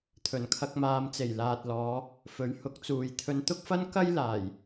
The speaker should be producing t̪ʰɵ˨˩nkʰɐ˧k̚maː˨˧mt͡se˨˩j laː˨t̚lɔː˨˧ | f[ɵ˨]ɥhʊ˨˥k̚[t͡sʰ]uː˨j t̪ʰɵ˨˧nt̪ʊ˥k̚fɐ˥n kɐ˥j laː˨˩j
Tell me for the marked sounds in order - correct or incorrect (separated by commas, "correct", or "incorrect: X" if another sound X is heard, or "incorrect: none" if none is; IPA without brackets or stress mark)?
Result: incorrect: ɵ˨˥, incorrect: t͡s